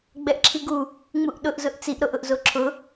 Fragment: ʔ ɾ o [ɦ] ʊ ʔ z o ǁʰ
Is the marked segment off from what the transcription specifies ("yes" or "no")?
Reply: yes